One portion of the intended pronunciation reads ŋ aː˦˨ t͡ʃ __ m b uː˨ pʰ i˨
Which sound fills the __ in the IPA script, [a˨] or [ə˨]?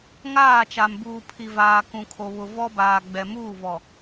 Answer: a˨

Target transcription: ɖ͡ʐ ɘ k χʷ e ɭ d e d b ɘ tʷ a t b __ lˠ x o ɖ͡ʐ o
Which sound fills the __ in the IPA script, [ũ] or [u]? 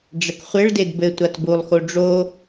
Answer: u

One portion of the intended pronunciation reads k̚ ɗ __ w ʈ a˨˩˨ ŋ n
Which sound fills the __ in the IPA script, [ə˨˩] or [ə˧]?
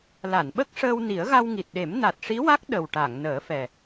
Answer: ə˨˩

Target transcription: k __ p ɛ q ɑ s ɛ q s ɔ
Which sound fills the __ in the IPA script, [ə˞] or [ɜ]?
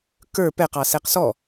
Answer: ə˞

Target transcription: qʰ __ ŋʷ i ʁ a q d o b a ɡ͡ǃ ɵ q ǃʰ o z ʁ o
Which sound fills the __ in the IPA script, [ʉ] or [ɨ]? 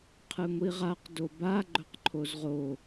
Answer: ɨ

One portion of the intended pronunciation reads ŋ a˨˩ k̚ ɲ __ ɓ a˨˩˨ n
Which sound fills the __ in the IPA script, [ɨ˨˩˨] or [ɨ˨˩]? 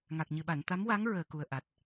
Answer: ɨ˨˩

